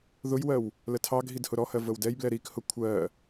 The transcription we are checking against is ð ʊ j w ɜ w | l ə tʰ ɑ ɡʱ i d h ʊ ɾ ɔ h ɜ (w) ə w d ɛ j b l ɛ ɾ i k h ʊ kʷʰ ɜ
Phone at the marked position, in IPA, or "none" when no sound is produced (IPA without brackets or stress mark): v